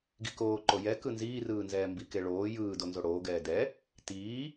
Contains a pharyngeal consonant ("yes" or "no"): no